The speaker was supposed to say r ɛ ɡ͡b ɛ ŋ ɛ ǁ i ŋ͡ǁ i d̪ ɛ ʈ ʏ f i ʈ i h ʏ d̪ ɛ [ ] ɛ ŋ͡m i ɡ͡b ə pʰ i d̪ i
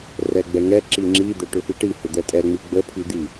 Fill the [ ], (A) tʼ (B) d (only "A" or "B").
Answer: A